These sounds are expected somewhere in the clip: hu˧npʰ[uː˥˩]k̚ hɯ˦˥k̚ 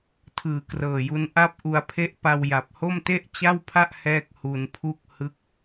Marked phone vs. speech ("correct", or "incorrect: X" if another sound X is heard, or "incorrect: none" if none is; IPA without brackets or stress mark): incorrect: u˥˩